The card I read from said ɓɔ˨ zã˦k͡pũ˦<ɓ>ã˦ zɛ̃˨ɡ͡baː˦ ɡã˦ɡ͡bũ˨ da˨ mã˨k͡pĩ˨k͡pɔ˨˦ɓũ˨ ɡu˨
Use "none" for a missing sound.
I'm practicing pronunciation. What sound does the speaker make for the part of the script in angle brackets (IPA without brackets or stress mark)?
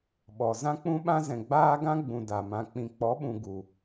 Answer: ɓ